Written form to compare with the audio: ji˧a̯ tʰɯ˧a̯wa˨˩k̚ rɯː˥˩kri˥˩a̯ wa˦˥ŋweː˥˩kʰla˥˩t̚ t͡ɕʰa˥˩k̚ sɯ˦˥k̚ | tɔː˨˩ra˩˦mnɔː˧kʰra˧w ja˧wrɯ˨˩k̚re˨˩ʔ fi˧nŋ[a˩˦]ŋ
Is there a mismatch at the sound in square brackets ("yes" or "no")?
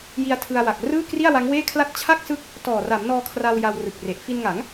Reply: no